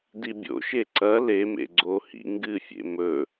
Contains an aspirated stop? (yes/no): no